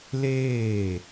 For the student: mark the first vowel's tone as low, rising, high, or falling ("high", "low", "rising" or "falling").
falling